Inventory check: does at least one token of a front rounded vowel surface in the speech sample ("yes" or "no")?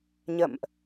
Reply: no